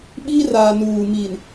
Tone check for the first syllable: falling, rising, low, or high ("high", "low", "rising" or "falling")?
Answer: high